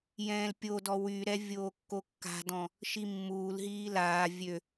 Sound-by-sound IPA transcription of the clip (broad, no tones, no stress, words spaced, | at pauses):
jɛ̃ːlpʲodɔ wyɾɛ vʲoːkːokːa̤dɔ̃ | ʃimːuːlɦiː laː vʲø